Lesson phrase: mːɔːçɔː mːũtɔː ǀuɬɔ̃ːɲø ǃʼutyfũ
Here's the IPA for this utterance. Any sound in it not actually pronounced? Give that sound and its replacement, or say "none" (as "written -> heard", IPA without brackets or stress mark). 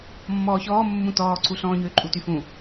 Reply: none